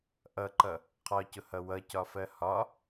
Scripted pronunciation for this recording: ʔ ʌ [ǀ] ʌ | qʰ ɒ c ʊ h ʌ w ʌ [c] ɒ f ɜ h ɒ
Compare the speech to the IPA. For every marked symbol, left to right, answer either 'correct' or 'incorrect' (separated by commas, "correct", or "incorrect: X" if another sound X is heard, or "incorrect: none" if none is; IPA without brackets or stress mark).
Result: incorrect: ǃ, correct